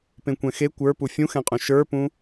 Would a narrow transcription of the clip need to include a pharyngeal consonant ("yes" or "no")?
no